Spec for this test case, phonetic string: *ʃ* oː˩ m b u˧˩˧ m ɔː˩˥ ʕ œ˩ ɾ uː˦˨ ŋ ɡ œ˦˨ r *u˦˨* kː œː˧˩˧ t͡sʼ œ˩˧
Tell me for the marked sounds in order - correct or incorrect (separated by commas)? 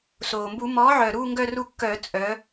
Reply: incorrect, correct